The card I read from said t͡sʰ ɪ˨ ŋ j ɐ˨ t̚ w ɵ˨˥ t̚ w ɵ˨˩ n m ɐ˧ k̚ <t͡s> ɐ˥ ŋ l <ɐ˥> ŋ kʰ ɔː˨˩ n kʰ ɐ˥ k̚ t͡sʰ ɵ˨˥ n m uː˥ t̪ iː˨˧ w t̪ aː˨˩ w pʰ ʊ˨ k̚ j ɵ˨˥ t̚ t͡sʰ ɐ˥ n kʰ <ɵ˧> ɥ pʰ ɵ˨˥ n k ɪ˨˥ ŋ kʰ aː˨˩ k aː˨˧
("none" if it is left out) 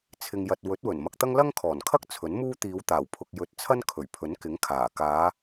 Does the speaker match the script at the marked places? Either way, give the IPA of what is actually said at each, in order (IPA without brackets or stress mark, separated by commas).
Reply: t̪, ɐ˥, ɵ˨˩